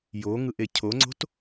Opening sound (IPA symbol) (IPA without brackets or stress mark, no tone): j